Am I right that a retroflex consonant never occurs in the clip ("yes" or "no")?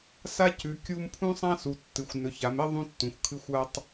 yes